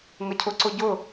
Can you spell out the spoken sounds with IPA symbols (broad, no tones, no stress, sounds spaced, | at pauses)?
ŋ ə cʰ ʊ ǀ ʊ ɟ ʊ